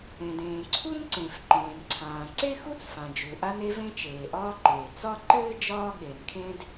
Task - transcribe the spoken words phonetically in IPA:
ẽ˩ d ẽː˩ ǀʰ u˥ n ǀ ẽ˩ f ǃ ẽː˩ n ǀʰ ãː˩ ǀ e˥ x u˥ t͡s f ã˩ d͡ʒ u˩ ʔ a˥ n e˥ v ẽ˥ t͡ʃ eː˩ ʔ ɒː˥ ǃ eː˩ t͡s ɒ˥ ǃ ɘː˥ d͡ʒ ɒː˥ ɠ e˩ n kʰ ẽ˥ d

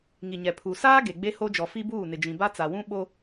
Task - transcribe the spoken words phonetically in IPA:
ŋ i˨ ɲ ɛ˨ pʰ u˨ s aː˦ ɡ e˨ ɡ͡b e˦ h o˦ d͡ʒ ɔ˨ f i˦ b uː˦˨ n ɪ˨ d͡ʒ ĩ˨ b a˦ t͡s a˨ w ũ˦ ɓ o˦

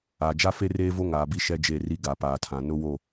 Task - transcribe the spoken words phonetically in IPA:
a˨ d͡ʒ a˦ f e˦ r eː˦ v o˦ ŋ aː˨ b i˦ ʃ ɛ˦ d͡ʒ e˦˨ r i˦ ɡ a˨ p aː˨ tʰ ã˨ n ʊ˦ w o˦˨

